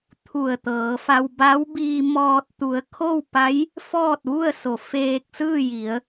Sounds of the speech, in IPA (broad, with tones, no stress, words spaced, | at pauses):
t̪ʰu˧˩ə̯t̪ɤː˩˧fa˧w ba˧˥wbiː˧mɔː˧t̚ t̪u˩˧ə̯kʰo˥˨wpa˧˥j | fɔː˥˨t̚ʋu˥˨ə̯so˩˧ feː˧k̚sɯː˥˨ji˩˧ə̯